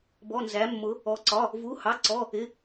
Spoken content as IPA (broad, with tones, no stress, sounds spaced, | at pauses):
b ɔ˧˥˧ n z æ˧˥ mː ʊ˧˥ | ɔ˧˥ ǀ ɒ˧˥˧ | v u˧˥˧ h ɑ˧˥˧ ǀ ɔ˧˥˧ | ɪ˧˥˧